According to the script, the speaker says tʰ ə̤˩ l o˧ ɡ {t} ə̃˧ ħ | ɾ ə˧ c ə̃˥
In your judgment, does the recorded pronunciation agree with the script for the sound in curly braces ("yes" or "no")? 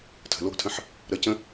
no